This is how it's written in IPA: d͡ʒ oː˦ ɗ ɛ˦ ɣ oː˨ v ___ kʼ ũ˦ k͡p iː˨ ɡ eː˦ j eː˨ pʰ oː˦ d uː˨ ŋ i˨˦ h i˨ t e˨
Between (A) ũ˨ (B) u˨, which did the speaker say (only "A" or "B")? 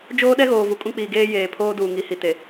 B